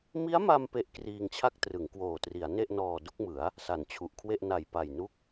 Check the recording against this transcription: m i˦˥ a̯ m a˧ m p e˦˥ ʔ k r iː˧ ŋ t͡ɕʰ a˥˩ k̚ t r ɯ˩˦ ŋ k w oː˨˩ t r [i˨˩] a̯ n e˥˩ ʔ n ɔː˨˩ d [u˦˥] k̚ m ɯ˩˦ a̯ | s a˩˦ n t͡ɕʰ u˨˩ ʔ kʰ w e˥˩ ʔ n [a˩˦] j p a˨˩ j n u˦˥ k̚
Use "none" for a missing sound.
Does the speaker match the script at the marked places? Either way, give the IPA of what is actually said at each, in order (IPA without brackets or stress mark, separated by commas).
i˩˦, u˥˩, a˨˩